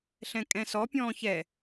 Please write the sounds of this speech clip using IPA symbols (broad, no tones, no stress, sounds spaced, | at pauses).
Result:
ɬ ɛ̃ kʼ ɛ̃ s ɔ pʲ ɔ̃ː ç ɛ